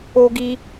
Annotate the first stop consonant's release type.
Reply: plain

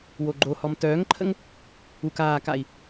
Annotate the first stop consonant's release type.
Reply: click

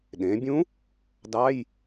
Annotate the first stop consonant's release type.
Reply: implosive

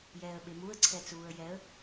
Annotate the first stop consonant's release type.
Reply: implosive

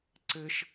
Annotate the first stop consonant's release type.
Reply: click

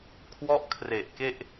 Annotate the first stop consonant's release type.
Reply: aspirated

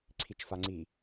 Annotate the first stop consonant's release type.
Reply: click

